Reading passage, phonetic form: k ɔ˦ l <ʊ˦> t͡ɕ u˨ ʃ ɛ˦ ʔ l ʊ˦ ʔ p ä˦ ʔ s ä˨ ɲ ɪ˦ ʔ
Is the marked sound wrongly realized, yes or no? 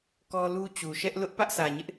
yes